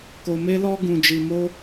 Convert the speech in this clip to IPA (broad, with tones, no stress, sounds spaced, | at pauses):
k o˧ m e˦ l ɔ˦ ɡ ũ˧ d͡ʒ i˧ m o˦